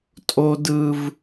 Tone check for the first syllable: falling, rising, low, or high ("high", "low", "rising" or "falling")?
low